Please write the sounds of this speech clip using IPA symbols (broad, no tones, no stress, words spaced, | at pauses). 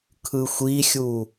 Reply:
kʰɯxʷixʲu